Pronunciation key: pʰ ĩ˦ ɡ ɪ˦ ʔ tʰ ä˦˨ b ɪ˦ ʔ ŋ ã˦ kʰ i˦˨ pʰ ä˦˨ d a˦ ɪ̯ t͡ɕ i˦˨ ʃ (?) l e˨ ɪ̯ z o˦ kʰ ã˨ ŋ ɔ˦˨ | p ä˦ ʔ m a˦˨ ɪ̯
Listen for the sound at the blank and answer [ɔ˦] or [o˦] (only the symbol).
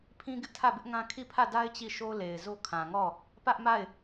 o˦